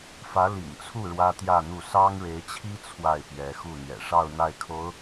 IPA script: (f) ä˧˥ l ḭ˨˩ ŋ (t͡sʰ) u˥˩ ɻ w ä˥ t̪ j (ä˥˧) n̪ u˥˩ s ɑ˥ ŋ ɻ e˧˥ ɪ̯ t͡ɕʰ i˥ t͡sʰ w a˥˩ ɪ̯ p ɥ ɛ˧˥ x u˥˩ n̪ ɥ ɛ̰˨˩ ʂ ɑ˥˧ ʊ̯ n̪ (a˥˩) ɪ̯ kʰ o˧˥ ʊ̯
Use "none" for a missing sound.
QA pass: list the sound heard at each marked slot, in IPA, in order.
f, t͡sʰ, ä˥˧, a˥˩

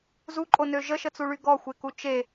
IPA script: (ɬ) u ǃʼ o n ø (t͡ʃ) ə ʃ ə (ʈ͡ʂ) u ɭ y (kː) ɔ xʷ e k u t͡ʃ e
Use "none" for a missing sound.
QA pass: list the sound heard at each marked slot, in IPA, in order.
z, ʒ, t͡s, ɡ

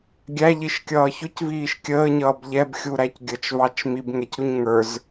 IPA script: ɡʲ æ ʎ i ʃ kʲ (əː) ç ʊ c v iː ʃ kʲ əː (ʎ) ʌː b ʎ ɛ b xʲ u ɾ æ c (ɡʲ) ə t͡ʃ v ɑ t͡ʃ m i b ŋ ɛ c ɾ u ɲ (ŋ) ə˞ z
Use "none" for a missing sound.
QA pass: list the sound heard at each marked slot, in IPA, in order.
ʌː, ɲ, ɡʲ, ŋ

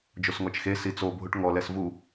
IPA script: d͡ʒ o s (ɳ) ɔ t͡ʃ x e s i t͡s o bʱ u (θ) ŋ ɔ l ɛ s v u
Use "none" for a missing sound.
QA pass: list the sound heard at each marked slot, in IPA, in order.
ŋ, ʈ

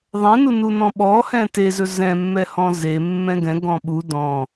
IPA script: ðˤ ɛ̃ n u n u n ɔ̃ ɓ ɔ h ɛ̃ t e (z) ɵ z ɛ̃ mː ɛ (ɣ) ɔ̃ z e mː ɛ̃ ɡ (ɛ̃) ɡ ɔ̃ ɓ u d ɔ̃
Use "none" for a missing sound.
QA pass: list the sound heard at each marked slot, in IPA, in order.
z, h, ɛ̃

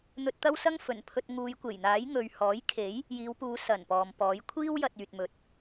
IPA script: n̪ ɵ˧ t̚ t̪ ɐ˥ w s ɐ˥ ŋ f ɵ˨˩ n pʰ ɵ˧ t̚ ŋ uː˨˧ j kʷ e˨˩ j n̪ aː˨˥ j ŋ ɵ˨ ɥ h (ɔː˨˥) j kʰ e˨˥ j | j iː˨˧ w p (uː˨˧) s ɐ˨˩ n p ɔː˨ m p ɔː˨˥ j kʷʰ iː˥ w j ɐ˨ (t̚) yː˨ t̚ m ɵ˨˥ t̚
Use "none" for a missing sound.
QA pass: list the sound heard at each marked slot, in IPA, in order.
ɔː˨˥, uː˨˧, t̚

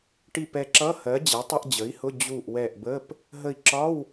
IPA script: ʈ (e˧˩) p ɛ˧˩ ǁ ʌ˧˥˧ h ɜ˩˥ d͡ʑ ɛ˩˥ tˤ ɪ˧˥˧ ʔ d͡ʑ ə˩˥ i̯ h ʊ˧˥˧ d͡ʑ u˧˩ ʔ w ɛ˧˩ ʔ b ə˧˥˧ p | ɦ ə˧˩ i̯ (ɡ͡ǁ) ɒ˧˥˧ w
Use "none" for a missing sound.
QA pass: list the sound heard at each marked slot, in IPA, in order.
i˧˩, ǁ

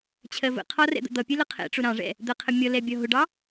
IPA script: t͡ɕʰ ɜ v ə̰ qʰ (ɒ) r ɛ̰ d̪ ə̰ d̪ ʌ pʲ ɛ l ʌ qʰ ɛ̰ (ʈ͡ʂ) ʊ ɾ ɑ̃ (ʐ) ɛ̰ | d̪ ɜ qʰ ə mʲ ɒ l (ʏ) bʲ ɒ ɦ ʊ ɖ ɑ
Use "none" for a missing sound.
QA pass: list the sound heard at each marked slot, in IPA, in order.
ɒ, ʈ͡ʂ, ʐ, ɛ

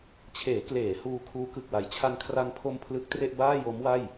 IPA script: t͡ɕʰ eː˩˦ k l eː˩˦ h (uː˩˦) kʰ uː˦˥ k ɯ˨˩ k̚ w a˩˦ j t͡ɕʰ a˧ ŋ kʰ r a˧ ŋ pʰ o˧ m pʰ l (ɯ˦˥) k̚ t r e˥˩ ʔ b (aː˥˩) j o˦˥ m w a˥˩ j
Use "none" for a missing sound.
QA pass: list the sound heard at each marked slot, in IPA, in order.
uː˧, ɯ˦˥, aː˥˩

